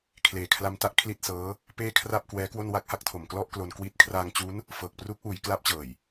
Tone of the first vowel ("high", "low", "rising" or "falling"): low